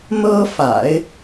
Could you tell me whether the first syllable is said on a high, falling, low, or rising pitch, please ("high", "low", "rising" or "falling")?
high